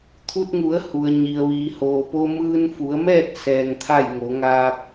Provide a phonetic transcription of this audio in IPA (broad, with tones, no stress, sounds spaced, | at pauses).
t̪ʰ u˧ t̚ ŋ u˩˧ ə̯ h u˩ ə̯ ɲ i˩ ə̯ ʋ iː˩ h oː˩ p o˧ m ɯː˧ n f u˩˧ ə̯ m ɛː˥˨ t̚ s ɛː˧ ŋ t̪ʰ a˥˨ j ŋ o˩˧ ŋ aː˧ p̚